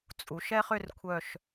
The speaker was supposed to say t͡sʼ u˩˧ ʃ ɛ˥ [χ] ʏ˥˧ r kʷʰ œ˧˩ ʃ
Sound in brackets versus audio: correct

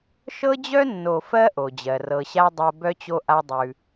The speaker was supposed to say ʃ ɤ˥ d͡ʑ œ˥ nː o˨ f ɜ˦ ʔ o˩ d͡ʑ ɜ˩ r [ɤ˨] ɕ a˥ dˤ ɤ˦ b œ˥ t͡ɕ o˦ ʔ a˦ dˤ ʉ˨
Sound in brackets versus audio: correct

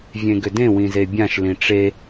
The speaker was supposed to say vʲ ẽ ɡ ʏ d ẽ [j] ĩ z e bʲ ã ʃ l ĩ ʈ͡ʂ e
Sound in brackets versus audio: incorrect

